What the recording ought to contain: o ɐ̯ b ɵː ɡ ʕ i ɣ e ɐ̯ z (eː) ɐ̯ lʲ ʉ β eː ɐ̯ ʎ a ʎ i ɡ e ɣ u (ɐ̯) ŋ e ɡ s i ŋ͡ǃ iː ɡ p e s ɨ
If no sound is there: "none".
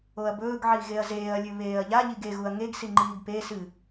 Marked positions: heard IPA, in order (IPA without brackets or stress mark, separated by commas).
eː, ɐ̯